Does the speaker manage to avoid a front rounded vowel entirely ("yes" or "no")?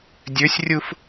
no